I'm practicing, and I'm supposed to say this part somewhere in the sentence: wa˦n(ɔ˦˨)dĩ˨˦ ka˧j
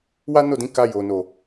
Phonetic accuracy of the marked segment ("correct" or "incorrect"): incorrect